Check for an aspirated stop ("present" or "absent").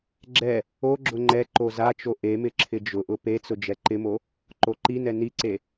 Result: present